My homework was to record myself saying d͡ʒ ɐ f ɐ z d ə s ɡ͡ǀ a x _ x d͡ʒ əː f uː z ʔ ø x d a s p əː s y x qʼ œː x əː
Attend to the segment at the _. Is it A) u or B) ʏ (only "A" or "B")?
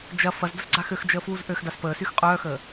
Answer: B